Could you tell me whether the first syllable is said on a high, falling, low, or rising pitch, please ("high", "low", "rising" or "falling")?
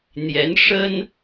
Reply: rising